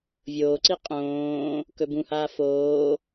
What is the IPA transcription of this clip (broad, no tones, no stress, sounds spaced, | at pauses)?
vʲ oː ǀ i qʼ õː | k ɵ b ũ h aː f oː